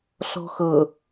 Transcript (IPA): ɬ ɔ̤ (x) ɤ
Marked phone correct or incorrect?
correct